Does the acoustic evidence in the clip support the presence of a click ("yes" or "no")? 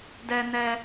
no